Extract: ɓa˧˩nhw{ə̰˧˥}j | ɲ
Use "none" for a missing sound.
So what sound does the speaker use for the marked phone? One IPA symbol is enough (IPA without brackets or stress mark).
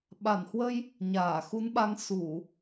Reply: ə˧